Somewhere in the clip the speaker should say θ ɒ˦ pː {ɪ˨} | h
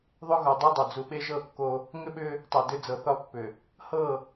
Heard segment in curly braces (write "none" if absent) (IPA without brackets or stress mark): ʏ˨